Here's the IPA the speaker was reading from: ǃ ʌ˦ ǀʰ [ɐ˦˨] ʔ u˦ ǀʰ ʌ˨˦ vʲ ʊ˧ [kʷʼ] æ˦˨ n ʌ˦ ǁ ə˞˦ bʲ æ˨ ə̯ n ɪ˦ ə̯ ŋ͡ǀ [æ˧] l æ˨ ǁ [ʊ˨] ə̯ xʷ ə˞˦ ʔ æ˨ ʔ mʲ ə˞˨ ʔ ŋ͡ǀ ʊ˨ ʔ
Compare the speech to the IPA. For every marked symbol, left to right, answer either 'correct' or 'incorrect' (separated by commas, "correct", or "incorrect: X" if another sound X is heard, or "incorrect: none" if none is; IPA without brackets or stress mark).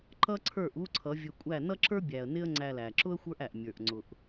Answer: incorrect: ə˞˦˨, correct, correct, incorrect: ʊ˦